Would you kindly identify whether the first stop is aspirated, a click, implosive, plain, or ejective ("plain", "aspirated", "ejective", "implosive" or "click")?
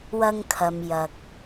aspirated